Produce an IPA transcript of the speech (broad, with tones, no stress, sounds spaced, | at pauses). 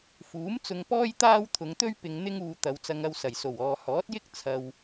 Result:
f uː˨˥ m t͡s ʊ˧ ŋ p ɔː˥ j t̪ aː˥ w t̪ʰ ʊ˨˧ ŋ t̪ ɵ˥ ɥ p ɪ˧ ŋ n̪ ɪ˥ ŋ uː˧ t̪ ɐ˨˧ w t͡s ɐ˧ ŋ ɐ˧ w s ɐ˨˩ j s o˨˩ w ɔː˨ h ɔː˨˥ t̚ j ɪ˥ k̚ t͡sʰ ɐ˨ w